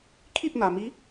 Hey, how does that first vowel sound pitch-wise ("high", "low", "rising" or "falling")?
falling